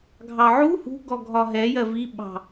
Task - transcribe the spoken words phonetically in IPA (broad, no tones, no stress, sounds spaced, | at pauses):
ɡʱ ɑ ʕ u h ṳ ɡ ɔ ɡʱ ɒ ɦ ɛ j ɜ v i ɓ ɑ̤